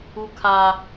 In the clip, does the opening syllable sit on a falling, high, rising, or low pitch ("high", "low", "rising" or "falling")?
high